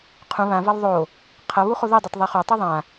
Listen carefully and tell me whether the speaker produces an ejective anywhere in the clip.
no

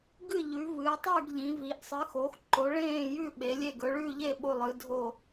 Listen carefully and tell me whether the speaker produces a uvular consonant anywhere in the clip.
no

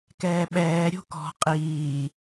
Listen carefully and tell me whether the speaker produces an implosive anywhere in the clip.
yes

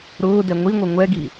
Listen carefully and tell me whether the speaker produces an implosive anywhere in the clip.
no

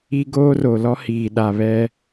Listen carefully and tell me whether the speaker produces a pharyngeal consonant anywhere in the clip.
no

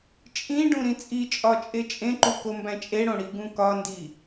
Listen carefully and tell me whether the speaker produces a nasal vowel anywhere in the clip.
yes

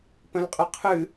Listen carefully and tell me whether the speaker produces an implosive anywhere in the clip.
no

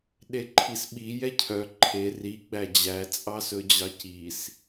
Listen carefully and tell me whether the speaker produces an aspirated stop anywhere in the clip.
yes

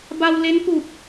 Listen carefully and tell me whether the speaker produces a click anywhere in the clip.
no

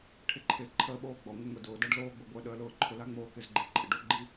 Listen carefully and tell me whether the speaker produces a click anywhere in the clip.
yes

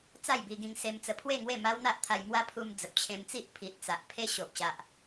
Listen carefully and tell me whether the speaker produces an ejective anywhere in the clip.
no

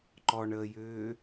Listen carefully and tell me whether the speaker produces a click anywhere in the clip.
yes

